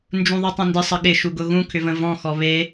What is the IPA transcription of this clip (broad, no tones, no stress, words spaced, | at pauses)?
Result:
nd͡ʒũðˤitˤə̃ndɪ sˤəɠɪ ʃuɡʊɣũ kʰʏvə̃vɔ̃ xɔβe